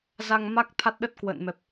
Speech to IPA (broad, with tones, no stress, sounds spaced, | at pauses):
z a˧ ŋ m a˦˥ k̚ t̪ʰ a˦˥ t̚ ɗ ə˦˥ t̚ k w ə̰ː˧˨ n m ɛ˨˩ p̚